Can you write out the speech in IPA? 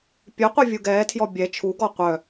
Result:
pʲ œ qʷ œ vʲ u ɡ ɛː tʰ j ɔ bʲ ɛ t͡ʃʰ u ɡ ɔ qʷ œ

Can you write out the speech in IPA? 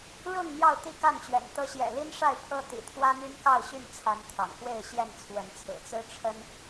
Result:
ɻ ʊ˥˨ ŋ n̪ j ɑ˥˨ ʊ̯ t̪ i˥˨ k a˥˨ n t͡ɕ ɥ ɛ̰˨˩ n t̪ ɤ˨˦ ɕ j ɛ̰˨˩ l i˦ n ʂ a˥˨ ɪ̯ pʰ ɤ˦ t̪ ḭ˨˩ t̪ʰ w ä˦ n̪ y˦ n k ɑ˥˨ ʊ̯ ɕ y˥˨ n t͡sʰ a˨˦ n t̪ʰ ɑ̰˨˩ ŋ x w e˥˨ ɪ̯ ɕ j ɛ˥˨ n t͡sʰ w ə˨˦ n t͡sʰ ɹ̩˨˩ t͡s ɹ̩˦ ʈ͡ʂʰ ə˦ n

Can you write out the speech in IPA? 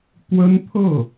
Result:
t̪ w ə˥ n t̪ʰ ɤ˥˩

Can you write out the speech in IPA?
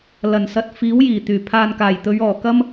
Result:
l ɐ˨˩ n s ɐ˨ t̚ f iː˨˥ w j iː˨˩ t̪ yː˨˩ pʰ aː˨ n k aː˨˩ j t̪ ɵ˨˧ ɥ ɔː˨˩ k ɐ˥ m

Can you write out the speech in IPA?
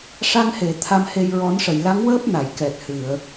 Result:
ʂ a˧ ŋ h e˨˩˨ t̪ʰ a˧ m h e˧ j ɹ ɔ˨˩˦ n ʂ ə˨˩˨ j l a˧˥ ŋ w əː˦˥ p̚ n a˨˩˨ j k ɛ˨˩ t̚ h ɨ˨˩˨ ə̯

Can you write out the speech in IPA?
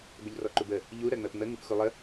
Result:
b ə ʎ r ɔ ǃ u b ə | ʎ u ɾ ɜ ŋ͡m ɜ p ŋ͡m ə ŋ u p x u lˠ ə

